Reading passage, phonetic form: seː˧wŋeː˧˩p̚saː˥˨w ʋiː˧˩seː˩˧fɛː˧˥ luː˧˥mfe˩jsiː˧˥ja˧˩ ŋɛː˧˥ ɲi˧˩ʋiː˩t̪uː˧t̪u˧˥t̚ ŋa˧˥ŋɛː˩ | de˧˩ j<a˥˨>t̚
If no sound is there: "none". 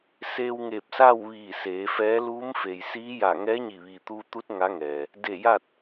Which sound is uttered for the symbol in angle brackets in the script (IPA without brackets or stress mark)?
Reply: a˥˨